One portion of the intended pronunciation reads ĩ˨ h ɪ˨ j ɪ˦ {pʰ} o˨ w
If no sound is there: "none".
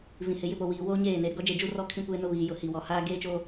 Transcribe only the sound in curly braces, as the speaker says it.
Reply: p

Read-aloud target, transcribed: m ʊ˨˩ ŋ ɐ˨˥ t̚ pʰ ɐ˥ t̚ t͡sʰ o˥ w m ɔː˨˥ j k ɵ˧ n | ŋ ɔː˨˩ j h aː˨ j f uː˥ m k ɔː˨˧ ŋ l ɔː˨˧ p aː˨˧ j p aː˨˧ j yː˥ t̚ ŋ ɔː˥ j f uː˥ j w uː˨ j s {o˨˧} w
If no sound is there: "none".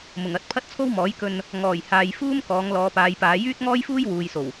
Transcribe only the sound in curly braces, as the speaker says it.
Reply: o˨˩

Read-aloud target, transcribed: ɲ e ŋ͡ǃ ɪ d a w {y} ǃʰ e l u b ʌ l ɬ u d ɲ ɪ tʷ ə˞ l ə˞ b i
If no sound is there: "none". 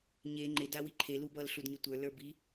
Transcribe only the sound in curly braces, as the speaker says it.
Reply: i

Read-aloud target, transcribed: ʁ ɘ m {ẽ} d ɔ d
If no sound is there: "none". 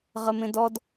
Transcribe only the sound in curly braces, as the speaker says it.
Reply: ẽ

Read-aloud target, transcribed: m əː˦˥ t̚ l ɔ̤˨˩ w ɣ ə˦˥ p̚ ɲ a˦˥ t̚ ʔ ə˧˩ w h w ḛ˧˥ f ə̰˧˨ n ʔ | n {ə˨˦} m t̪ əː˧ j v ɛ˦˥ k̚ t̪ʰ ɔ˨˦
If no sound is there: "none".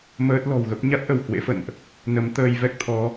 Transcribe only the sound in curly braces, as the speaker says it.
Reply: ə˨˦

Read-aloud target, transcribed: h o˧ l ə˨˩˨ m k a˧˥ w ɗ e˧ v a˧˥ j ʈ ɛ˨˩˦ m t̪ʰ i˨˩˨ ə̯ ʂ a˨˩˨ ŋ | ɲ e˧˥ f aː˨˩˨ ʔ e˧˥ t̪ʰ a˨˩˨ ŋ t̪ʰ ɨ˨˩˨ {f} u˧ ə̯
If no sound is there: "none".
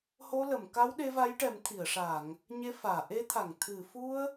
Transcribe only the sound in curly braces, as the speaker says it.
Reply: f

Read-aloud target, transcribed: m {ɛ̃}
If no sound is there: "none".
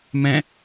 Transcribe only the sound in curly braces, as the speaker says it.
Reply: ɛ̃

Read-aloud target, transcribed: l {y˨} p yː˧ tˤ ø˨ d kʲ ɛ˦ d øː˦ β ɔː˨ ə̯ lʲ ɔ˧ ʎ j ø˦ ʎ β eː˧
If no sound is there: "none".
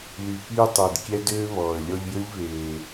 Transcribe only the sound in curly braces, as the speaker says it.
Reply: y˨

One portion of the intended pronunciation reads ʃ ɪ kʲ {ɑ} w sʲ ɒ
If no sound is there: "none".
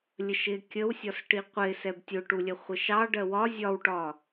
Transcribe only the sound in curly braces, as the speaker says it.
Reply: ə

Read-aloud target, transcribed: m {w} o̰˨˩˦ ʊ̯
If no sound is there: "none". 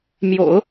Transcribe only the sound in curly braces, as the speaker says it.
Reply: j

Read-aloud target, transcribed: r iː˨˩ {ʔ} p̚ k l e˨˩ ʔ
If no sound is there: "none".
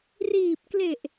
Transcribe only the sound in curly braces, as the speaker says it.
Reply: none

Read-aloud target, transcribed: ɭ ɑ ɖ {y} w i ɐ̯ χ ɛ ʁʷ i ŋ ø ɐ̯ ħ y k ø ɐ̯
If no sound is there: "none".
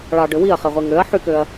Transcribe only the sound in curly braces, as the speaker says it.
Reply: ø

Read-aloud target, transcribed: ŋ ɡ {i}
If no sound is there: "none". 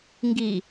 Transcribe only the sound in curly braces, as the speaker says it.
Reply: i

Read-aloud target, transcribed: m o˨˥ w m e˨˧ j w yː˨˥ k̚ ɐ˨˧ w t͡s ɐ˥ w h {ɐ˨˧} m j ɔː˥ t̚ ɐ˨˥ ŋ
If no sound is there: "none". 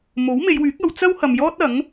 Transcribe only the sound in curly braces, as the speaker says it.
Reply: ɐ˨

